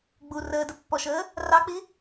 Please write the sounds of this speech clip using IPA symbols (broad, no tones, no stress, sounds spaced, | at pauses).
ɡ͡b u r əː d ə pː ɔ ʃ əː | r ɑ k͡p i